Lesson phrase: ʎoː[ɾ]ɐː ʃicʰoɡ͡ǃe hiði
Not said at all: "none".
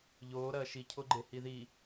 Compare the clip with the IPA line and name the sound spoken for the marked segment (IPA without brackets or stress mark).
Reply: ɾ